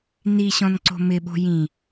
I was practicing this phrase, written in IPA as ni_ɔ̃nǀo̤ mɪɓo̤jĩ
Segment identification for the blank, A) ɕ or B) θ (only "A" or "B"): A